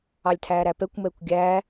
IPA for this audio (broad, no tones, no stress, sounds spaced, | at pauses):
ɑ lʲ tʰ æː ɾ æ p ɛ kʷ m ɛː kʷ ɡʲ æː